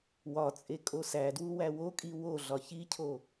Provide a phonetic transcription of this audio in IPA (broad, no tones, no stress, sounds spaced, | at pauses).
w ɒ t͡sʼ e kʼ o s æ d w u w æ w o kʼ i w o ɮ ɒ ç i cʰ o